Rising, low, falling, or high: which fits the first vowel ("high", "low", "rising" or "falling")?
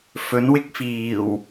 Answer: rising